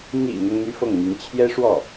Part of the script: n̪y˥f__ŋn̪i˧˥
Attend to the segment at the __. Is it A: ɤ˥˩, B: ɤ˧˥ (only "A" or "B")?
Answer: A